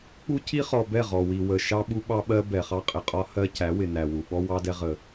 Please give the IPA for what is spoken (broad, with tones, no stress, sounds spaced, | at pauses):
k͡p u˦ c i˦ χ ɔ˨ b ɛ˦˨ ʁ ɔ˨ w i˨ w ə˨ ʃ ɑ˦ ɓ u˦ ɓ ɑ˦ ɓ ɜ˦ b ɛ˨ χ ɑ˦ qʼ ɪ˨ qʼ ɒ˦ h ɜ˦ c æ˨˦ w ɪ˨ n æ˨ w u˨ ɓ ɔ˦ w ɑ˦ d ɛ˦ ʁ ə˦